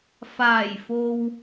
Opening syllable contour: low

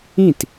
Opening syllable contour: falling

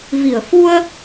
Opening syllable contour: low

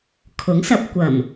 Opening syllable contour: rising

